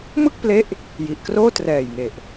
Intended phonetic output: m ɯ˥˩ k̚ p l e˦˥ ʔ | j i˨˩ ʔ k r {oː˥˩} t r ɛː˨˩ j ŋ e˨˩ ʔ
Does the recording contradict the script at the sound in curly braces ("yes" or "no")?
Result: no